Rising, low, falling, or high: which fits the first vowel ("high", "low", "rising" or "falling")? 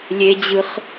high